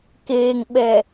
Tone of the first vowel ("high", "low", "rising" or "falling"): low